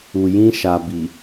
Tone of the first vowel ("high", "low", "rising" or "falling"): low